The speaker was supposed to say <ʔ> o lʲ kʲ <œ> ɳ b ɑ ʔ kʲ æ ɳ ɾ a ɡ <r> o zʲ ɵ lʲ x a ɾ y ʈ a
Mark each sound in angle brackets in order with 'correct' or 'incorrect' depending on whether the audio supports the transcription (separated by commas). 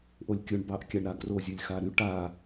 correct, incorrect, correct